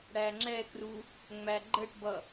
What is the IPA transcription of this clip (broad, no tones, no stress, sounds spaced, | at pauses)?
ɽ æ ŋ͡ǁ ɛ k r u | ŋ͡m æ ɡ͡ǃ ə ʈ b ʌ